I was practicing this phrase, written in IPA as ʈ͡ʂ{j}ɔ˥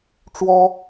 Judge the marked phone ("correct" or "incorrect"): incorrect